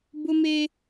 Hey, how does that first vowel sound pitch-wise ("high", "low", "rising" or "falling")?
high